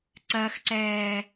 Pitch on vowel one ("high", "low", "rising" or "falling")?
high